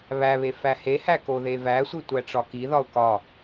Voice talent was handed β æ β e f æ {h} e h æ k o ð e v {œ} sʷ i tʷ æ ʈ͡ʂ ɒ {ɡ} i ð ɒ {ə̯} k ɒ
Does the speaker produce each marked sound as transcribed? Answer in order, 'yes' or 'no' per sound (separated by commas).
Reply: yes, no, no, no